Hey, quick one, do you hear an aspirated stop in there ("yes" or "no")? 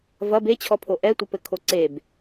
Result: yes